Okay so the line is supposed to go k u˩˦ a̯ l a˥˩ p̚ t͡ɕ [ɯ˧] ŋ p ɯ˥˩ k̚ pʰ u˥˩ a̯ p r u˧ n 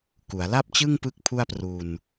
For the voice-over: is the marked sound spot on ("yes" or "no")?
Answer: no